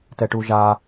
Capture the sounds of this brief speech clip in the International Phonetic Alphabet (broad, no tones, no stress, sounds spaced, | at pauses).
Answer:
t ɛ ʈ u ʒ a